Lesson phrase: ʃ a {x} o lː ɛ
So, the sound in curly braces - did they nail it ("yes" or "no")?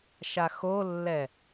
yes